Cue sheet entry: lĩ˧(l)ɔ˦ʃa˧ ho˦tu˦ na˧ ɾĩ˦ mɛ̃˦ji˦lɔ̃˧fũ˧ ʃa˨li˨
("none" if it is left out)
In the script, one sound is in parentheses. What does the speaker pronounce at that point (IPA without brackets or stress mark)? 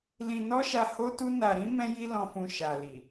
n